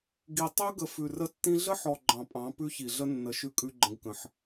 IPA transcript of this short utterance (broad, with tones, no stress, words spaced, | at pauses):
ɡi˨ tˤʉ˦ɡə˨ fʉ˨rə˦tːĩ˦ ɮə˦ħɔ˨ ɡ͡ǃɑ̃˨pʼɑ̃˨˦ pʉ˦çi˨ɮə˦nːə˨˦ ʃʉ˦kʼʉ˦ɡ͡ǃə̃˦ɡkə̃˦ħ